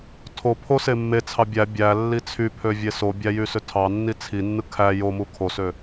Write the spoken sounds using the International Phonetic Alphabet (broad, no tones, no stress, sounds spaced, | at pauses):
tʰ o pʰ o s e mː e t͡sʰ ɑ bʲ æ bʲ æ lː i t͡sʰ y pʰ ø vʲ e s o bʲ æ j y s ø tʰ ɑ nː i t͡sʰ i nː ɯ kʰ æ j o m u kʰ o s ø